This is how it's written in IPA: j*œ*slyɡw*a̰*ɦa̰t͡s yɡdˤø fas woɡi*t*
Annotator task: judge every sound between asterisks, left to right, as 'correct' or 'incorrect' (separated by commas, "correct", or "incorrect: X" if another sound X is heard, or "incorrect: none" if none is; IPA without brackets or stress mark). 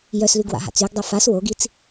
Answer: correct, correct, incorrect: t͡s